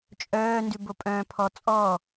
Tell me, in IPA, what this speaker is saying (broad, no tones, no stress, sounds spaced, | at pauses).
t͡ʃʼ œː n d ʉ b o pʼ œ̃ː pʰ ɔ t͡sʼ ɔ